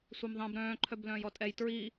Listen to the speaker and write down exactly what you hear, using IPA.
sʷ ɛ m ðˤ ɛ̃ b ɾ œ̃ː ǃʰ œ b l œ̃ː j ɔ tʼ ɛ j t ɹ i

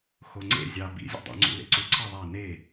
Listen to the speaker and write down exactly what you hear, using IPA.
x o ŋ͡ǀ ḛ zʲ ɑ b ḭ zʲ ṵ dˤ æ̰ ŋ͡ǀ ṵ l ḛ ǀ u ǀʰ ɑ ðˤ æ n e

